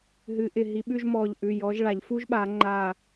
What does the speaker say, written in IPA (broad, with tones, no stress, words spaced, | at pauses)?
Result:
ɦɨ˨˦ʔɪ˧˩ɦi˨˦ɓʉ˥˧ʒ mɔ˧˩ʎ ʔʉ˩˧˩jɔ˨˦ʒɭa˨˩˦ʎ fu˦˥ʒɓa˨˩˦ŋ͡ǃa˧˩